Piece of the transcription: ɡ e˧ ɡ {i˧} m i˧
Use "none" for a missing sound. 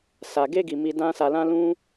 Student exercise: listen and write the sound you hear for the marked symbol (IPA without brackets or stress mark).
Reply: i˨